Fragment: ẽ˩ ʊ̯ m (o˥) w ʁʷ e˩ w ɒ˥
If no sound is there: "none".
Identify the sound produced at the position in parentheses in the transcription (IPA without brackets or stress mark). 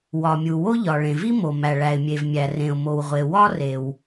o˩